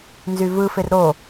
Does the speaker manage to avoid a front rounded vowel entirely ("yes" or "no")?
no